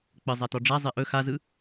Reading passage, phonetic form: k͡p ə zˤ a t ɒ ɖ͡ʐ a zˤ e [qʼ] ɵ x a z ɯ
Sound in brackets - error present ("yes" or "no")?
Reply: yes